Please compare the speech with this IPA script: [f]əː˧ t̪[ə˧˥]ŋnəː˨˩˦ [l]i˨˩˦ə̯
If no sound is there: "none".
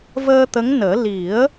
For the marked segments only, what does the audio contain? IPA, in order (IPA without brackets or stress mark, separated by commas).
v, ə˧˥, l